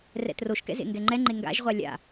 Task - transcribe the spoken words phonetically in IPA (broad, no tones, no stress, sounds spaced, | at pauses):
r ɛ̰ t r o ʃ k ɛ̰ z ḛ ŋ ɡ ɛ ŋ͡ǃ ɛ ŋ͡ǃ e ŋ ɡ a̰ ʒ ʁʷ a lʲ a̰